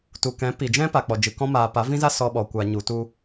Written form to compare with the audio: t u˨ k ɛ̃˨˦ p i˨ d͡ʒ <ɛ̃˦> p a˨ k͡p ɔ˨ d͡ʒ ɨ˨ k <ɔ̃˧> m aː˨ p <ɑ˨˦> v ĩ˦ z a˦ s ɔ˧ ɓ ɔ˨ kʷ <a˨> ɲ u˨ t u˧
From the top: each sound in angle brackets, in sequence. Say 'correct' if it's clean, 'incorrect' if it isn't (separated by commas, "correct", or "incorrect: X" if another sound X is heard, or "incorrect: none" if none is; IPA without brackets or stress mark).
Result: correct, correct, incorrect: a˨˦, correct